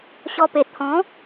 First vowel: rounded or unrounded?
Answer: rounded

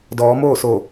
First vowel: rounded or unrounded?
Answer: rounded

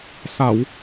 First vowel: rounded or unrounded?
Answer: unrounded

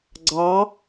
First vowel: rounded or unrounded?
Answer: unrounded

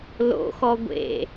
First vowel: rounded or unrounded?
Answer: rounded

